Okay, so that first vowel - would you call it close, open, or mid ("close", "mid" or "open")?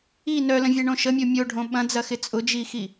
close